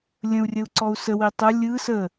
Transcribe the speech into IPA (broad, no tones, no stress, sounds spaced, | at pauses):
lʲ ə̃ u̯ rʲ ə u̯ ǀ ɔ u̯ s ə w i tˤ ə lʲ ɯ s ə